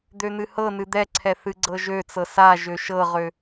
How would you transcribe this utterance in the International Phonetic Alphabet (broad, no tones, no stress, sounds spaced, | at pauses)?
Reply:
d̪ ø n̪ ɨ h ɤ n ɨ d̪ ɛ ǀʰ ɛ θ ɨ ɡ͡ǀ ɤ ʒ ø t͡s ɤ s a ʒ ø ʃ ɤ ʁ ø